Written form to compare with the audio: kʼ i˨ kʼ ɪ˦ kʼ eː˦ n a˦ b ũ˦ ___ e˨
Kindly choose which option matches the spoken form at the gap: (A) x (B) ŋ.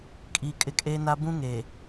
B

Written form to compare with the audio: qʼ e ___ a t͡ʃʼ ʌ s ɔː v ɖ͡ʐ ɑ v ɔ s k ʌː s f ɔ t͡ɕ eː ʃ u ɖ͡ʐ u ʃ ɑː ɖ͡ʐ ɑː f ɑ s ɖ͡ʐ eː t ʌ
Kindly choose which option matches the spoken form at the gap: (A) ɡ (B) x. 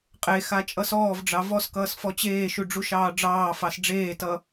B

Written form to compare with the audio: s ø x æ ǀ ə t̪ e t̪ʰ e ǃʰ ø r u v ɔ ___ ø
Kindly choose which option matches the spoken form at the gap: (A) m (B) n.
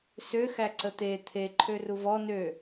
B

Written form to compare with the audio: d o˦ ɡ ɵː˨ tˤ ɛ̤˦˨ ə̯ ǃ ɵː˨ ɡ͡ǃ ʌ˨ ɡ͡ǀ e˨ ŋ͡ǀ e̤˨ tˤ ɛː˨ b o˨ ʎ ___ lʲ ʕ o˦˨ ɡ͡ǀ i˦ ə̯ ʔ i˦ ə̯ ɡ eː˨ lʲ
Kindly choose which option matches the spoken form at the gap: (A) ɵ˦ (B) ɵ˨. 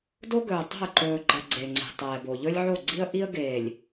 A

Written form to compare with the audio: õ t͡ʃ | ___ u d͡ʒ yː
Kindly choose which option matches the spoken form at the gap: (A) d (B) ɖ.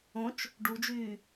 B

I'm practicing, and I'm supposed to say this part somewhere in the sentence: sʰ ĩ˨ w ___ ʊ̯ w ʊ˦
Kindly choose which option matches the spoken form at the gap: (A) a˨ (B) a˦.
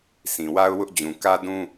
B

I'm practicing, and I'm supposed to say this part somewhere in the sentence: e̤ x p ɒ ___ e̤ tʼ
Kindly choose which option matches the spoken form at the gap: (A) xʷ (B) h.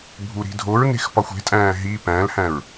A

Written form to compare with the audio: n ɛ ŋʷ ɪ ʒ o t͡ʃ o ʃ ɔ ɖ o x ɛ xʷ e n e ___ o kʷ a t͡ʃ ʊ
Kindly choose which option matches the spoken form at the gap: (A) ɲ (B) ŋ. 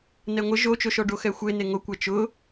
B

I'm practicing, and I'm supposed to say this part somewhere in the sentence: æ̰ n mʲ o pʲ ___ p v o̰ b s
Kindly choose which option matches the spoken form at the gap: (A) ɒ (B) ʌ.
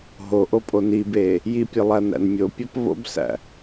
A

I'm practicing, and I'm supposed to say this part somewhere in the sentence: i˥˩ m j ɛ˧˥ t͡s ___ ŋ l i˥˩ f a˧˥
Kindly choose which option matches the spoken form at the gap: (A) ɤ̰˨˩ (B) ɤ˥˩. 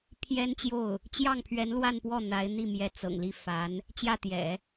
A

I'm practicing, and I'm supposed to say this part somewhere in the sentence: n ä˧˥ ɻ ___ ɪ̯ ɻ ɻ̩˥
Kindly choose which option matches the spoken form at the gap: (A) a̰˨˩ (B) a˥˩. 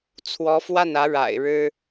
A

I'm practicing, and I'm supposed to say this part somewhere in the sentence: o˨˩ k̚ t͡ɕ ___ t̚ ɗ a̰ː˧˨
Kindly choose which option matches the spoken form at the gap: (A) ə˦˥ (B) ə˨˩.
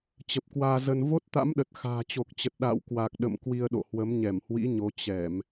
B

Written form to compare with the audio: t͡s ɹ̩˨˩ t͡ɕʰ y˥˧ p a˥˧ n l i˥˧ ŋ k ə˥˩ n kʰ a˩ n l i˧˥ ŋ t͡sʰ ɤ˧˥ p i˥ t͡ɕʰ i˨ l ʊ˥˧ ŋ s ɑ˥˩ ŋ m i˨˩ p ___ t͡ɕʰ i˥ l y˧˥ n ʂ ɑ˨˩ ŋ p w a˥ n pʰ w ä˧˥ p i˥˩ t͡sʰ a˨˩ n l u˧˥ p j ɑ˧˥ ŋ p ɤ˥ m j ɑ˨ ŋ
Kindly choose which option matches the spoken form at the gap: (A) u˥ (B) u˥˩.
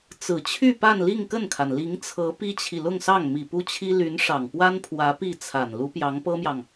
A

